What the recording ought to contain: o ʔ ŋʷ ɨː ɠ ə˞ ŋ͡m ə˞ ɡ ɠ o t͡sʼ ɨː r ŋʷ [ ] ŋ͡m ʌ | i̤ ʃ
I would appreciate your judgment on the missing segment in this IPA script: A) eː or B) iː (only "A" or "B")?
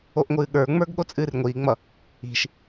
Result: B